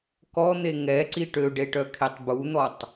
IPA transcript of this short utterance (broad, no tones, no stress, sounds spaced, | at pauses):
k ɔ n̪ e ŋ ɛ ǀ i ʈ ø ɖ e ʈ œ kʰ e tˤ b u n̪ ɔ tˤ